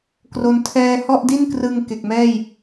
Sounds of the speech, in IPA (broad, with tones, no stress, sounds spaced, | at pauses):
k r o˦˥ n tʰ ɛː˥˩ h ɔ˥˩ ʔ d i˥˩ n k r ɯ˧ ŋ k e˨˩ k̚ m ɛː˥˩ j